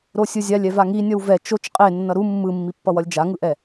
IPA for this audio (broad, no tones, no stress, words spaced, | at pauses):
ɾosʲɯzʲalʲ ɛvaŋi nʲʌwvɛ t͡ʃot͡ʃ qʼenːʌ ɾu mːɯmːipːʌwʌlʲ d͡ʒaŋɯʔɛ